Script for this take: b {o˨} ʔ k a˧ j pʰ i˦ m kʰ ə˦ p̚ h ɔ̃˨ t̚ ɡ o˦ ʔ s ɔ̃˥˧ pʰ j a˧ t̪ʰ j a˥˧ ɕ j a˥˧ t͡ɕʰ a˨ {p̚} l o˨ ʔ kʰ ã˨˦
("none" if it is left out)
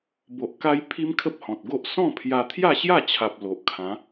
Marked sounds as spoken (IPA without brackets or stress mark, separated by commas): o˨, p̚